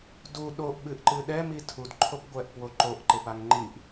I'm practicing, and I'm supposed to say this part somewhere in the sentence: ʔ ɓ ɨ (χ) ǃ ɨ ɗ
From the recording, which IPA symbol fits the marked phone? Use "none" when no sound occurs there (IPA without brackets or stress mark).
ʔ